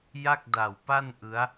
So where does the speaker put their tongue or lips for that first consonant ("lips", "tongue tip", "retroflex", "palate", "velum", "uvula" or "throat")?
palate